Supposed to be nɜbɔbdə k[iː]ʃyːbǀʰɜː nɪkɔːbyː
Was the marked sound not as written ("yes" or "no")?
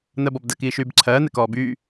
no